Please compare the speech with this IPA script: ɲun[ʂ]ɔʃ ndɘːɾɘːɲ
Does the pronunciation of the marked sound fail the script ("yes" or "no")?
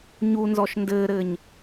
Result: yes